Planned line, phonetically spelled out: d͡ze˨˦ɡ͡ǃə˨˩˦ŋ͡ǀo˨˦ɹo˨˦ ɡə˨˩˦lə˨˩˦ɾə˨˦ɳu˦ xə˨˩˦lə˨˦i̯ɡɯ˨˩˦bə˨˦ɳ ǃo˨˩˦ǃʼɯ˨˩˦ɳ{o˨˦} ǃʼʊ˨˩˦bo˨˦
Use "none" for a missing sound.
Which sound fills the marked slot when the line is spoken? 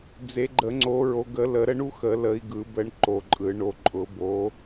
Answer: o˨˦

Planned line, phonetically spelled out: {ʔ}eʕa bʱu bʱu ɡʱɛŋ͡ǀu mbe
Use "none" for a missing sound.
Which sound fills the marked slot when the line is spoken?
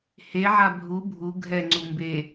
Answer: h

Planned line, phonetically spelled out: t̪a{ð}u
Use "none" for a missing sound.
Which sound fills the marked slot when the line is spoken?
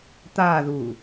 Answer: ð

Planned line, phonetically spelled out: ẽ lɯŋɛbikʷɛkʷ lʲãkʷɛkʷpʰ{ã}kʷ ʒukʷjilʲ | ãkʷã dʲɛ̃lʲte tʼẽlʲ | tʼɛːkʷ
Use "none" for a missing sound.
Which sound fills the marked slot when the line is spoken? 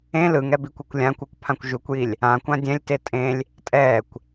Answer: ã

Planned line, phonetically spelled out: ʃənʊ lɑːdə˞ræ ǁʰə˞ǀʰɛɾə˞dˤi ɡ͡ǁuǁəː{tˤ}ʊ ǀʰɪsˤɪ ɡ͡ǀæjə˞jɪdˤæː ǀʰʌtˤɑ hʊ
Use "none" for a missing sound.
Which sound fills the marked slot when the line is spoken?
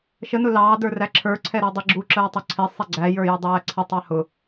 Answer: tˤ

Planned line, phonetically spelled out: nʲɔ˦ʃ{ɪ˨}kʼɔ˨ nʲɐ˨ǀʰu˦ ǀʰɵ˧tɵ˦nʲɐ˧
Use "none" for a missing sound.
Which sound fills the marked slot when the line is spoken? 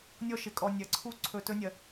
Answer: ɪ˨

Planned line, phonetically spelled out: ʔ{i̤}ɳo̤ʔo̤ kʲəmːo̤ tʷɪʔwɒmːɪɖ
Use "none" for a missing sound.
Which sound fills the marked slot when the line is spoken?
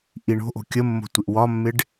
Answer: i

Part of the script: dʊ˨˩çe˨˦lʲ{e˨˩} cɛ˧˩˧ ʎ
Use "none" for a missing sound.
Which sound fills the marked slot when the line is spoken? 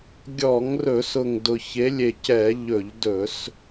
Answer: e˨˩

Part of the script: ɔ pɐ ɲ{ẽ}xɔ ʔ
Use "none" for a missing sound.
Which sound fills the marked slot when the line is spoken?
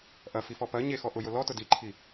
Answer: e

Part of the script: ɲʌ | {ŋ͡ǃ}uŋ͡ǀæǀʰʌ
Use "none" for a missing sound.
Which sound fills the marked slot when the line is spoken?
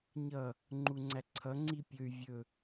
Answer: ŋ͡ǃ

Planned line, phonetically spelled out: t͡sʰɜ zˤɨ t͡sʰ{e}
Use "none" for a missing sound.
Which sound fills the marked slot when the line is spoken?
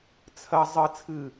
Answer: ɨ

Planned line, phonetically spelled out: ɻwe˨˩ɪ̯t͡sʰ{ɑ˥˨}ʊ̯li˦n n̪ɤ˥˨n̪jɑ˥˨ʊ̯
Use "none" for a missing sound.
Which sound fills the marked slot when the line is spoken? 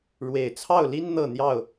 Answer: ɑ˥˨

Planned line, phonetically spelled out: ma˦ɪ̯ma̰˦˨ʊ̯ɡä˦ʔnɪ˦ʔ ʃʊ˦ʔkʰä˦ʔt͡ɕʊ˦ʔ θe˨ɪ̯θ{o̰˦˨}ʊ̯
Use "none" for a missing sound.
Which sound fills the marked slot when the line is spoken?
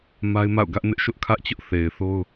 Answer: o˦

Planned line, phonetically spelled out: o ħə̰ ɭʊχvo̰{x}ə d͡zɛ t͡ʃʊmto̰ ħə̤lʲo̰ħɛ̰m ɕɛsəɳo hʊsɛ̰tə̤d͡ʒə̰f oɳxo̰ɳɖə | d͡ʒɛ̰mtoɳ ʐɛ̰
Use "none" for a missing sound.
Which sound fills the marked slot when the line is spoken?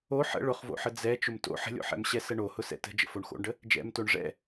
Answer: ħ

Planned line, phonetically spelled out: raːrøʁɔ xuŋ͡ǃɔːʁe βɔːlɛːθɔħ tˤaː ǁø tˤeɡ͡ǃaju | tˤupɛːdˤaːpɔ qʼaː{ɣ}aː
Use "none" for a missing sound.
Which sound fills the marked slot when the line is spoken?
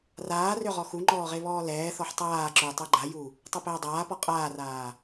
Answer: r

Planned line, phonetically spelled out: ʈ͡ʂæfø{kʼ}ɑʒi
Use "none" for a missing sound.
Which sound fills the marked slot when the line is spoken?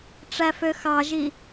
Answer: x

